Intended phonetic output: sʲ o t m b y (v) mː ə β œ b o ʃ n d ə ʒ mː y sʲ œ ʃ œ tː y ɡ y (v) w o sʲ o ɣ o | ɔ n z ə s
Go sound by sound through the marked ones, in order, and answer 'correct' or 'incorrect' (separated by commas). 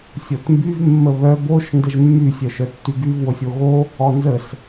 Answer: correct, correct